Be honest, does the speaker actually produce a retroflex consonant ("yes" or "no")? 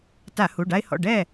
yes